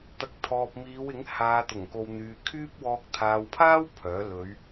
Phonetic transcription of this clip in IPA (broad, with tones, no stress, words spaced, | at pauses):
t̪ɐ˨k̚t̪ʰɔː˨p̚miː˨˧wɪ˨˥ŋ haː˨t̪ʊ˨˩ŋ ko˨wn̪yː˨ kʰyː˥p̚wɔː˧k̚ t̪ʰaː˨wpʰaː˥w pʰœː˨˥ lɵ˨˧ɥ